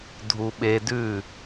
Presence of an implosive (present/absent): present